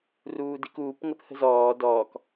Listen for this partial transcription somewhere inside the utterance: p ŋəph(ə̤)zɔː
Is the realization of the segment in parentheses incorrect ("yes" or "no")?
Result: no